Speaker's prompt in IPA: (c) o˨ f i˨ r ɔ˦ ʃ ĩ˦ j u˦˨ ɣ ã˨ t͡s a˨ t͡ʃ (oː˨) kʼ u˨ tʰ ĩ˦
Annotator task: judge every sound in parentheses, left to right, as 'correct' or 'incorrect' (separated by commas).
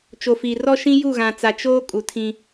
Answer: incorrect, incorrect